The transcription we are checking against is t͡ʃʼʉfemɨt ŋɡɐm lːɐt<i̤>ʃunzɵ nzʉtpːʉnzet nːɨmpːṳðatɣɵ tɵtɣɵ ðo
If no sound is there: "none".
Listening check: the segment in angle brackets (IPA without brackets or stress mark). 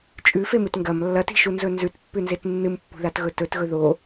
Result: i̤